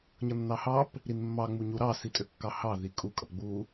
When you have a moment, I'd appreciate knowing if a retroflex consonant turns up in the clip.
no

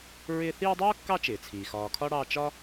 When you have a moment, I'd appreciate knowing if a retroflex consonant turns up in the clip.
yes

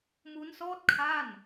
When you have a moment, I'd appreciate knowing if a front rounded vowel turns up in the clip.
no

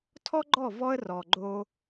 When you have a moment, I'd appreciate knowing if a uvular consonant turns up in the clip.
no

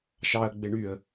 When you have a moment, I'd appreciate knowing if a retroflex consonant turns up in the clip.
yes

